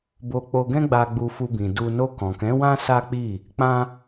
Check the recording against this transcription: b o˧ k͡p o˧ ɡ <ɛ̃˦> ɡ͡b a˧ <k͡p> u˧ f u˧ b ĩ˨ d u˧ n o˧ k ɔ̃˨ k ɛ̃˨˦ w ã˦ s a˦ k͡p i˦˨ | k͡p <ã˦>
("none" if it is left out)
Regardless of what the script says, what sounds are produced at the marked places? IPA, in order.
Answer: ɛ̃˦, ɡ͡b, ã˦

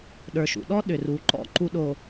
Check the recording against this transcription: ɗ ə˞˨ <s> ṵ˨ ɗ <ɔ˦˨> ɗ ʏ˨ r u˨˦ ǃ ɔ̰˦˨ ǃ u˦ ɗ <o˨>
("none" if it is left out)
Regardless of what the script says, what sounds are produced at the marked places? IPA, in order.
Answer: ʃ, ɔ˦, o˨

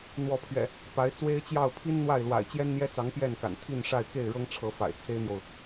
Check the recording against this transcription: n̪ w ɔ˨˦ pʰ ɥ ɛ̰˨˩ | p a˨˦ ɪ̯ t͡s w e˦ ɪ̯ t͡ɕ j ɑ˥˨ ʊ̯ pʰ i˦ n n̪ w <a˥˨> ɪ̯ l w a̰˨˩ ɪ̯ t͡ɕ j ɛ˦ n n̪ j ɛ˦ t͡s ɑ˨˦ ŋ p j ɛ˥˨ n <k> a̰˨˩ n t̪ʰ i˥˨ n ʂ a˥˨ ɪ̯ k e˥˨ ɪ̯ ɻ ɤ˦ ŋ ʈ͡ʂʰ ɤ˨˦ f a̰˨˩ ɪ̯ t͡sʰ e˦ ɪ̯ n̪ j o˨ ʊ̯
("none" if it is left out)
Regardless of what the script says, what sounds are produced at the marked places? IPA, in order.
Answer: a˥˨, k

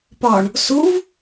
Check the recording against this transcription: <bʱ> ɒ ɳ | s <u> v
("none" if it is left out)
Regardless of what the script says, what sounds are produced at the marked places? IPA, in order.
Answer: p, u

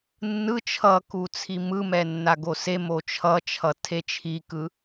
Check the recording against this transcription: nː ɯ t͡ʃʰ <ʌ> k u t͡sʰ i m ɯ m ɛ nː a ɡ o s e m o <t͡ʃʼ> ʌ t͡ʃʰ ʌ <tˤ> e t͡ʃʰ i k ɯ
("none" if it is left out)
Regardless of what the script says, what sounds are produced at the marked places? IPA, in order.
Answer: ʌ, t͡ʃʰ, tʰ

